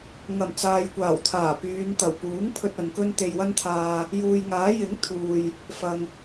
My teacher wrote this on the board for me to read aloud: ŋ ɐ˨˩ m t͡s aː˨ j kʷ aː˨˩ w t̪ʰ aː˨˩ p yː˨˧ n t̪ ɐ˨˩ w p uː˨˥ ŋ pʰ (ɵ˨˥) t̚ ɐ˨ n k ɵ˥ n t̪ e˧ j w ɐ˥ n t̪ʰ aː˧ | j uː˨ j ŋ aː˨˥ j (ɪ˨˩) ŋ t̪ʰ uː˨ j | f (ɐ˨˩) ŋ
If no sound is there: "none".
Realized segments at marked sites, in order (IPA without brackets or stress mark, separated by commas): ɵ˧, ɪ˨˥, ɐ˨